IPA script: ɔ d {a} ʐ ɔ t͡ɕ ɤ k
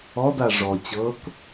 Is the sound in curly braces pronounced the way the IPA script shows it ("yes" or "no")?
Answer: yes